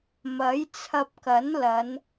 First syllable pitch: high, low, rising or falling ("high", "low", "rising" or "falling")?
rising